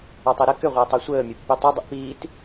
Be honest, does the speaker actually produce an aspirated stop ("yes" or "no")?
no